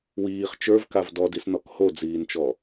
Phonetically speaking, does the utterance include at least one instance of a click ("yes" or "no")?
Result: no